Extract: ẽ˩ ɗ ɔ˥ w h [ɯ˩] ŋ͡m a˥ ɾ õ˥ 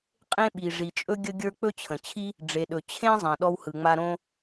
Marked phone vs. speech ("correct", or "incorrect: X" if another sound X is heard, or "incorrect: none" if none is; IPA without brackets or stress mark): correct